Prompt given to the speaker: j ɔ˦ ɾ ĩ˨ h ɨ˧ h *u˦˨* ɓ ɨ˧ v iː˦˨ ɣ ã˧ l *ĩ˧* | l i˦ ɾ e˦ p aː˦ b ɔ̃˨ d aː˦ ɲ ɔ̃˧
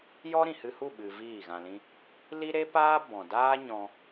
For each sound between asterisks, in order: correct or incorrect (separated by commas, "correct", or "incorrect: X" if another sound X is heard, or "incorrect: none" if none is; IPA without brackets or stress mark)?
correct, incorrect: ĩ˦